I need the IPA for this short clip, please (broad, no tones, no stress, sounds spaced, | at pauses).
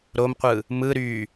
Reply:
ɾ o m qʷ ɯ | m ɯ ɾ y